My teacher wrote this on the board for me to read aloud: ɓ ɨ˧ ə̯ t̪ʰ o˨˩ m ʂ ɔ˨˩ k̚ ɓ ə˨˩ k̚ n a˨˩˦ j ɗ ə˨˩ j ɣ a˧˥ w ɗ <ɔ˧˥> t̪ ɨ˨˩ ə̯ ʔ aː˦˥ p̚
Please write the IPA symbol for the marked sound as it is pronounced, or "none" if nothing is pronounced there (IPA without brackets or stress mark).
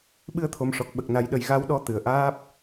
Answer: ɔ˧˥